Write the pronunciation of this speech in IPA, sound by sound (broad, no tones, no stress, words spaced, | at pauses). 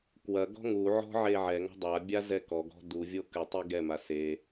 kwɐɡɔ̤ ŋuʕɔ̤ ʕeʕɛŋɔ̤ dˤabʲa zɛkɔɡɔ̤ duvʲo kɨtˤi ɡɛma se